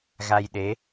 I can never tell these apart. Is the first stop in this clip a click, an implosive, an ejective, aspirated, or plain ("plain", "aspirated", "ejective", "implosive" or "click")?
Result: implosive